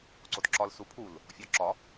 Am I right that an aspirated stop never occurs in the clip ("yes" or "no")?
no